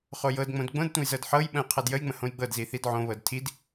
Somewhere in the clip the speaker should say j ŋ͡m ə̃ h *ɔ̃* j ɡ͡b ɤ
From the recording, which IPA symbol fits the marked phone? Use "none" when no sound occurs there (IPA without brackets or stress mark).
õ